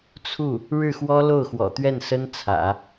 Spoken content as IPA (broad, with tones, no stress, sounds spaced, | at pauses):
t͡sʰ u˥˩ | ɻ ɻ̩˥˩ x w ɔ˥ l o˥˩ ʊ̯ x w ɔ̰˨˩ t̪ ɥ ɛ˥˩ n s ə˥ n t͡sʰ ä̰˨˩˦